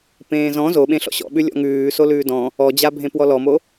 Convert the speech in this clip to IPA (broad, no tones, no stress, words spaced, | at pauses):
pẽːzɔ̃ zoɓẽ ɬɔ̰ɕɔ̰ɓʉ lʲɔ̰ŋʉː solʉːdɔ̃ | ɔd͡ʑabʱẽ pwɔlɔmo